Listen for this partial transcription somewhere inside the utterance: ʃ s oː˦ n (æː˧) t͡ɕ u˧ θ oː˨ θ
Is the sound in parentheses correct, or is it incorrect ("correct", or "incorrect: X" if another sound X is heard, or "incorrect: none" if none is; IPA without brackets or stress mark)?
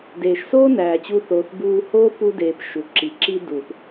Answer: incorrect: æː˨